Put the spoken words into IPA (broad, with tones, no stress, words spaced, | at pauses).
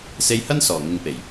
se˧jhɐ˥n sɔː˨˩ŋɪ˨ŋpe˨˩j